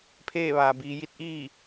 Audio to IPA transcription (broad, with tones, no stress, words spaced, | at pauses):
pʰeː˥˨ʋaː˩biː˩˧ ji˧˥t̚ʔiː˥˨